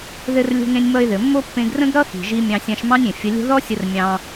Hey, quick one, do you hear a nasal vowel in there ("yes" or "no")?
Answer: yes